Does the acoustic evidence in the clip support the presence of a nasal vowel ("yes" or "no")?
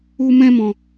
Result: yes